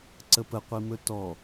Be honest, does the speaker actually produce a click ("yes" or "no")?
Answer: yes